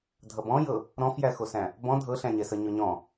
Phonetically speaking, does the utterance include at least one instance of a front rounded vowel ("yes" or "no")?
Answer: no